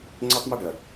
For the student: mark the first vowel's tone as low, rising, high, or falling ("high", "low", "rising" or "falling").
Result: high